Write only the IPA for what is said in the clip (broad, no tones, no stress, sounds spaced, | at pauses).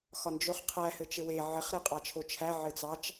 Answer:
x ɒ n d͡ʒ o χ qʰ æ h ɘ t͡ʃ ɘ w e ʕ ɘ χ ɾ e qʼ ɑ t͡ʃʰ o t͡ʃʰ æ ʕ ɘ t͡s ɑ t͡ʃ